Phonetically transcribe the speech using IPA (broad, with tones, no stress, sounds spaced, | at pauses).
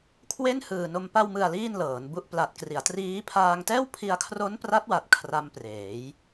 kʰ w e˥˩ n h ɯː˨˩ n o˧ m p a˧ w m ɯ˨˩ a̯ l iː˥˩ n l ɤː˩˦ n b u˦˥ ʔ p l a˨˩ t̚ k r i˩˦ a̯ t r iː˦˥ pʰ aː˧ ŋ t ɛː˥˩ w pʰ i˧ a̯ kʰ r o˦˥ n p r a˦˥ t̚ w a˨˩ t̚ kʰ r a˦˥ m p r eː˩˦ j